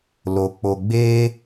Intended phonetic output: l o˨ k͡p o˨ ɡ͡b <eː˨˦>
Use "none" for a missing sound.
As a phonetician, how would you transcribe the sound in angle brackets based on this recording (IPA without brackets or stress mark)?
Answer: eː˦